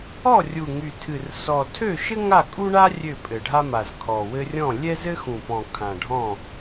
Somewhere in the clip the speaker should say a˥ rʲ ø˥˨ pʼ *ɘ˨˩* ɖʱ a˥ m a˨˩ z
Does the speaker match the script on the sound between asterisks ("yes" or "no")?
yes